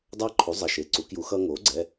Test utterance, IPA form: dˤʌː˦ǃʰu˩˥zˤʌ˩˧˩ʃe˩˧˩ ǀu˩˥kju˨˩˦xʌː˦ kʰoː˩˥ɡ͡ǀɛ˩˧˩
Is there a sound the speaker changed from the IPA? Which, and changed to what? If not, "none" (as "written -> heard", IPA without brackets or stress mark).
kʰ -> ŋ